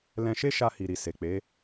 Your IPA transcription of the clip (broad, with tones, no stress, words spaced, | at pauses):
lɛ̃˧ʃe˦ʃa˧ hi˨ɾi˨ se˨k͡pe˨˦